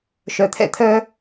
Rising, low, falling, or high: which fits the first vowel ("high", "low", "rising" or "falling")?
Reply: low